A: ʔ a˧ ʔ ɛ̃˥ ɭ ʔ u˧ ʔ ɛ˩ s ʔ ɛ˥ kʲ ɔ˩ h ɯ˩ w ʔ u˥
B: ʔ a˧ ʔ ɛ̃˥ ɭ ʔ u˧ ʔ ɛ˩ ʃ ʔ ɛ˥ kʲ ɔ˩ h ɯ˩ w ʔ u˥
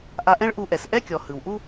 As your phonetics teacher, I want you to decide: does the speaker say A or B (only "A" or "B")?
A